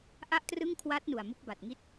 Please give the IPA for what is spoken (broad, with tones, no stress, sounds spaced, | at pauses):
ʔ a˥˩ ʔ t r ɯ˥˩ ŋ kʰ w a˦˥ t̚ n u˨˩ a̯ m u˦˥ k̚ b a˨˩ t̚ ŋ i˦˥ t̚